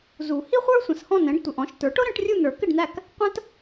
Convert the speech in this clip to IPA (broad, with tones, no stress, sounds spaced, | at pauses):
z u˨˩˦ h i˥ χʷ ə˞˥ sʷ ə̃˩˧˩ s h ɔ̃˥˨ n ɛ̃˩˥ ɖ tʷ ə˩˧˩ ʔ ɔ̃˩˥ ʃ t ə˞˩˥ ʈ ʊ˥ ɾ ə̃˨˩˦ ʈ rʲ u˥˨ n ə˞˨˩˦ k ɪ˥˨ ɖ n æ˥˨ k | qʷ ə̃˥ t